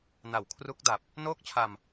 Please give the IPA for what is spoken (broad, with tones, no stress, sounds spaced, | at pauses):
n a˨˩ w kʰ r u˦˥ k̚ d a˨˩ p̚ | n oː˥˩ k̚ t͡ɕʰ a˧ m